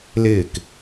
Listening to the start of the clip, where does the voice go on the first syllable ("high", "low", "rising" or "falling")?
falling